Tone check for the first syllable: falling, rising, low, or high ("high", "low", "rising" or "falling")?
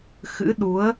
rising